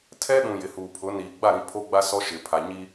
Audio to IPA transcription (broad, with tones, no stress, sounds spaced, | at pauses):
tʰ ɛ˦ ɗ ũ˨ j ɪ˨ h uː˨ pʰ ʊ˨˦ n iː˨ ɡ͡b a˦˨ ɾ ĩ˦˨ pʰ oː˦ ɡ͡b a˦ s ɔ˦ ʃ ɪ˨ pʰ a˨ ɲ i˦